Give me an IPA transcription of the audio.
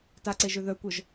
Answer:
t a ǀ e ʒ ø ð œ kʷ œ ʒ

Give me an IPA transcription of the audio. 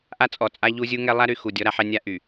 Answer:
ʔ a˦ t͡sʼ ɔ˨ t͡sʼ a˦ ʎ u˦ zʲ u˦ ŋ ɛ˦ lˠ a˦ ɾ y˨ x u˨ dʲ ɔ˦ ɾ a˦ ħ ɛ˦ nʲ a˦ ʔ y˨

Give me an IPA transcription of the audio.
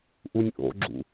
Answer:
ʔ u nʲ ʔ o̰ ɡ͡ǁ ṵ

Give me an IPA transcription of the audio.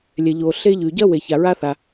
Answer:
lʲ ɛ˩ ʎ o˩ ɬ e˥ ʎ ʉ˩ ɟ ɐ˥ w e˩ ç a˩ ɹ a˥ θ a˩

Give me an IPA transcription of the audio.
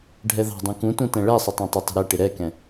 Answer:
ɖʱ ɛ ð ɑ̤ dˤ ũ k ũ t ũ t ɛ̃ ɭ ɛ sˤ ʊ tˤ ɛ̃ tˤ ɪ tˤ ə̤ ɾ ɛ ʈ ɪ ɾ ɛ k ɛ̃

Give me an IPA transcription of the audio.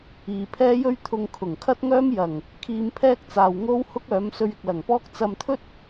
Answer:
iː˨ pʰ ɛː˥ j ɵ˥ ɥ t̪ʰ ʊ˧ ŋ kʰ ʊ˨˩ ŋ kʰ ɐ˥ t̚ ŋ œː˥ m j ɐ˨˩ ŋ | kʰ iː˧ m pʰ ɛː˥ k̚ t͡s aː˨ w ŋ o˥ w h ʊ˥ k̚ œː˨˥ m s ɵ˧ ɥ ɪ˨ k̚ l ɐ˨˩ ŋ p ɔː˥ k̚ t͡s ɐ˧ m t̪ʰ ɵ˥ t̚

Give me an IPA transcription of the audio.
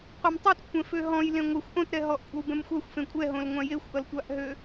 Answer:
qʷ e m tˤ ɛ t kʷʰ ɛ̃ f ø ɦ ɔ̃ j l ẽ ŋʷ a xʷ ʔ õ t ɾ ɛ ɦ ɔ ʔ kʷʼ a w b ɛ̃ m xʷ a xʷ f ẽ kʷʼ ɛ ɦ õ l ŋʷ ã j e xʷ ʔ ʌ l tʷ a ʔ ɦ ø

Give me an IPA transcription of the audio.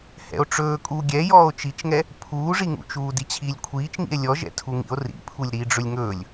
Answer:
h ɛ̰ o̯ ʈ͡ʂ ɵː kʼ uː ɡʲ ɛ j ɔː o̯ t͡ʃ i t͡ʃ ŋ ɛ | pʰ uː ʐ i ŋ ṵ t͡ʃ uː d i t͡ɕʰ iː lʲ kʷʰ iː t͡ʃ ŋ ḭ e̯ lʲ ɔ ʒ ɛ̰ tʰ u ŋ ḭ o̯ r ḭ pʰ u lʲ ɾ iː ɖ͡ʐ ɵ lʲ ŋ ɵː lʲ

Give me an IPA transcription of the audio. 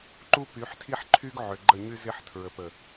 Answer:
ǃ u˦ p y˨˦ ħ tʰ i˦ ħ ǃʰ y˦ ɡ ʕ ʏ˨ ɡ͡ǃ ə˦˨ ɲ y˦ z ɪ˦ ħ tʰ ɹ ə˨ p ə˨

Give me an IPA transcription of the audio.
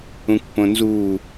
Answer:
ũ kʷ p õ n z u

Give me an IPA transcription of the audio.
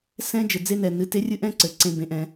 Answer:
s ɛ̃˦ d͡ʒ ɘ˨ d͡z e˦ n ɛ˨ n ɨ˨ t e˦ rʲ ɨ˦ ʔ ɛ̃˦ ǀ ɘ˨ ǀ ẽ˨ b ẽ˦ ʔ ɛ̃˦

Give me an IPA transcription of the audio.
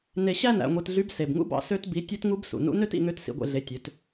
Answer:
n e˧ ɕ æ˥ n æ̰˩˧ ŋʷ e˧ t ɮ y˧˥ b s e˩ b ŋ ṵ˥ b ɑ̰˧ s ø˥ t b i˧˥ tʲ e˥ t ŋ u˥ b s ṵ˩ n ṵ˧˥ n ø˥ t ḭ˩˧ ŋ ø˧˥ t s ḭ˩˧ ɡʷ ḛ˩˧ ɮ e˩˧ tʲ ø˩˧ t

